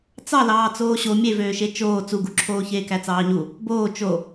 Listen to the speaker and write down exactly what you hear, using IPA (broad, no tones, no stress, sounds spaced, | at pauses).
t͡s ɑ l ɑː t͡s oː ɕ o mʲ e v øː ʃ e t͡ʃ oː t͡s u ɡ u ǁʰ oː ç eː k æ t͡s ɑː ɲ u | b oː t͡ʃ o